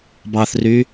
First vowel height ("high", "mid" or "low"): low